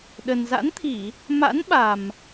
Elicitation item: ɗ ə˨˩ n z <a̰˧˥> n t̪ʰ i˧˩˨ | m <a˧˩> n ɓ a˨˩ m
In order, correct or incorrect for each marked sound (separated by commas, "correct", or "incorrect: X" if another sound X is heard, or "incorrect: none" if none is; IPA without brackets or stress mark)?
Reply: correct, incorrect: a̰˧˥